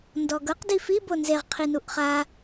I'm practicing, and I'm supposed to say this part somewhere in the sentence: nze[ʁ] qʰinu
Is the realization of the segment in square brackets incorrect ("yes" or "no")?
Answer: no